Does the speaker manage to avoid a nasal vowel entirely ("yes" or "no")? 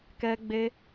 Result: yes